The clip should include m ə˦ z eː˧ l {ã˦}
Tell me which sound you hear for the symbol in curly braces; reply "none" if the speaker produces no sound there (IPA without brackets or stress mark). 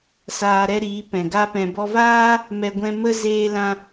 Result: ã˧